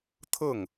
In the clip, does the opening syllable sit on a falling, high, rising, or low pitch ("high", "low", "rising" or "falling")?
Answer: falling